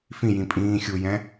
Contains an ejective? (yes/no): yes